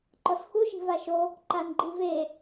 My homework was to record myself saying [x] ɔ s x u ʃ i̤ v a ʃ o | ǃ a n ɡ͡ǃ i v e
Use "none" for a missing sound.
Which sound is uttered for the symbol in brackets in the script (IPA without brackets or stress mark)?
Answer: ǃ